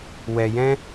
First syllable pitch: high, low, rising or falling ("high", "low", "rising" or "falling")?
low